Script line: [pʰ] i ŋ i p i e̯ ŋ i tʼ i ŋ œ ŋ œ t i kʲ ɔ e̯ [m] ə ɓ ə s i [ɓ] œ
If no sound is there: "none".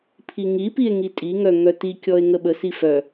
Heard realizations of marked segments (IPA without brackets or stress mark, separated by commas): pʰ, ŋ, f